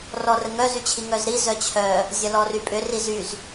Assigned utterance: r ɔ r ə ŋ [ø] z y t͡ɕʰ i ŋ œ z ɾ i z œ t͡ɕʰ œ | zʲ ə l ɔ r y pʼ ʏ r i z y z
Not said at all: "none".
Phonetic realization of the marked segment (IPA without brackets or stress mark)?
œ